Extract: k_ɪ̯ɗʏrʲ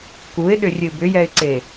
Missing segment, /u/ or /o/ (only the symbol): u